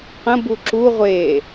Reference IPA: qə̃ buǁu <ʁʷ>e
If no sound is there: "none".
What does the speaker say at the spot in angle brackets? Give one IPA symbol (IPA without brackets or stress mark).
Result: ʁʷ